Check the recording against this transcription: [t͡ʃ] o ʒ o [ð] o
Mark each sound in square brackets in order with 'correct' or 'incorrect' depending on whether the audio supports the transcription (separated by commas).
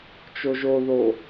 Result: correct, correct